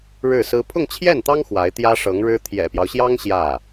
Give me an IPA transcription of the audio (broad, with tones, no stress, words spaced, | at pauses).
ɻɻ̩˥˩sɹ̩˥ pʰʊ˥˧ŋt͡ɕʰjɛ˥˩nt̪ɑ˥ŋ xwa˧˥ɪ̯ t̪jä˥ʂɤ˧˥ŋɻɻ̩˥ t̪ʰjɛ̰˨˩pjɑ˦ʊ̯ɕjɑ˥ŋ ɕjä˥˩